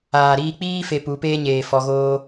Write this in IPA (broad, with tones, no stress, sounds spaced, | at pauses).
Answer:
aː˨ ɾ iː˧ k͡p iː˦ f e˧ p u˨˦ p eː˦ ɲ eː˨ f ɔ˧ ɣ oː˦